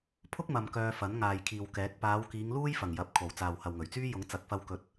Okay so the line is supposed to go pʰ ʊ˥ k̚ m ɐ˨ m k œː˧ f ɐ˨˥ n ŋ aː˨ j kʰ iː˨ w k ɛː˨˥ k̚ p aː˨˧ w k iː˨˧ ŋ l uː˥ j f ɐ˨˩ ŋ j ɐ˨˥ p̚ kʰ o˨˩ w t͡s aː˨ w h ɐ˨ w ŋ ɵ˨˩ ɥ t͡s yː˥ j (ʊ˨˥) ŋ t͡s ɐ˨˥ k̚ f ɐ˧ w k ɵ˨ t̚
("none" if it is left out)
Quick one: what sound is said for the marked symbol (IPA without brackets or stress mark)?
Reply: ʊ˨˥